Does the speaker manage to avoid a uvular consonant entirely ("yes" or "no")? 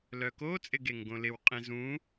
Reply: no